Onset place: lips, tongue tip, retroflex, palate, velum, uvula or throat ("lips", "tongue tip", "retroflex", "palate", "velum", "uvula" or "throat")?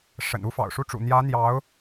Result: retroflex